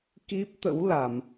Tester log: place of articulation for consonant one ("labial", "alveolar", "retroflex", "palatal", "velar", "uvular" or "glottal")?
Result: velar